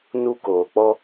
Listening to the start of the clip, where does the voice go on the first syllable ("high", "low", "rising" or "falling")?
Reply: high